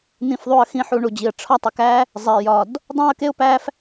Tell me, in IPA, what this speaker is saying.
n̪ ĩ˨ f ðˤ u˨ ə̯ x ĩ˨ ħ u˨ ɳ u˩ d͡ʑ i˩ ə̯ ʈ͡ʂʰ ɒ˦ tˤ i˩ k æ˦ | zˤ e˩ j ɒ˩ d | dˤ õ˥ ə̯ k e˥ ʊ̯ p æ˦ f

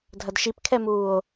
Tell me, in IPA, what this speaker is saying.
dʱ ɐ d ʃ i p kʰ ɛ m uː o̯

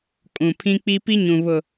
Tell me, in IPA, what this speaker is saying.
kʼ ũ˨ pʰ ĩ˦ k͡p i˦ p i˦ ɲ ũ˨ β ʊ˨

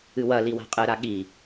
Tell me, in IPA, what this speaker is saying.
ɨ w ɐ l i w a̤ qʼ ɨ ɾ a ɠ i

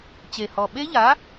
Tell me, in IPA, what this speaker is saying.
t͡ɕ e˨˩ h ɔ˨˩ ɓ e˦˥ ʎ a˨˥

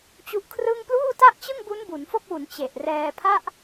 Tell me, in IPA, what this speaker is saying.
t͡ɕ u˦˥ ʔ kʰ r ɯ˥˩ ŋ p l uː˥˩ t a˥˩ ʔ t͡ɕ ɯ˥˩ ŋ b u˦˥ n b u˩˦ n f o˥˩ k̚ w u˩˦ n t͡ɕ e˨˩ ʔ r ɛː˧ pʰ a˥˩ ʔ

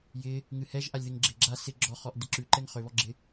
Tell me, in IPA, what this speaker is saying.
j ɪ | ŋ ɨ h ɛ ʒ ʔ a lʲ ð ɪ ŋ ɡ͡ǁ ɪ ɡ͡ǁ a s ɪ ɡ͡ǁ ɔ χ ɔ ʔ d ɪ ǁ ʉ ǃ ɛ ŋ χ ø β ɔ ɡ͡ǁ ɪ

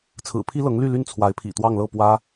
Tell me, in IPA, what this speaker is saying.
t͡sʰ ɹ̩˨˩ pʰ i˥ l ɤ˧˥ ŋ l y˥˧ l y˥˩ n t͡sʰ w a˧˥ ɪ̯ pʰ ḭ˨˩ t̪ w ɑ˥˧ ŋ l ɤ˥˩ p w ä˥

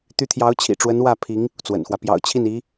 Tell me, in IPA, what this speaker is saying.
t̪ y˧˥ t̪ʰ j ɑ˧˥ ʊ̯ t͡ɕʰ ḭ˨˩ ʈ͡ʂ w ə˧˥ n w ä˥˩ pʰ i˧˥ ŋ | t͡s w ə̰˨˩ n x w ä˦ p j ɑ̰˨˩ ʊ̯ t͡ɕʰ i˥˩ n i˧˥

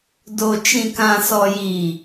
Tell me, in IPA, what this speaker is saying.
d o˨ t͡ʃ ĩ˨ k ã˨ s ɔ˨ j i˨

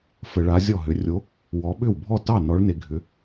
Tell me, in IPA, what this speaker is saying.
f ə˨ ɭ a˨˦ zʲ ɔ˥˩ ɦ ʏ˨˦ rʲ o˨˦ | w ɔ˨˦ ɓ ʏ˥˩ w bʱ ɔ˥˩ t ɑ˥˩ n ɔ˨˦ ɭ n e˨ ɡʱ ʏ˨˦

